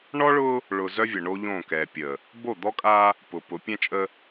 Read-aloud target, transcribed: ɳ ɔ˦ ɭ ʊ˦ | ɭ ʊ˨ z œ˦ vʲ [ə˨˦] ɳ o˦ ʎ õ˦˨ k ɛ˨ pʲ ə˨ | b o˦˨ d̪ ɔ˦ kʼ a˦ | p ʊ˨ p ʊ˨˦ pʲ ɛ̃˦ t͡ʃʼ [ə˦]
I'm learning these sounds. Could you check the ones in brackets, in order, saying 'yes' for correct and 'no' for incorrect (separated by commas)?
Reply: no, yes